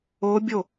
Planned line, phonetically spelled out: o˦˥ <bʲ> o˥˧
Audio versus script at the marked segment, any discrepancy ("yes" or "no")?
no